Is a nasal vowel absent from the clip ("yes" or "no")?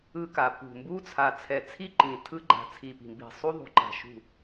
no